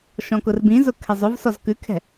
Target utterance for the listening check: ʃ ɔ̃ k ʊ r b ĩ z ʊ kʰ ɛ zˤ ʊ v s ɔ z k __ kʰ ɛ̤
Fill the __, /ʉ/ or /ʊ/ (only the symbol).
ʉ